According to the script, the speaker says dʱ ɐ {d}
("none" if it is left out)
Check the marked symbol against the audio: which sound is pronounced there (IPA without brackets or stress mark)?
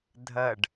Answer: ɖ